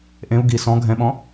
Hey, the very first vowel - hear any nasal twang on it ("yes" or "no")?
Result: yes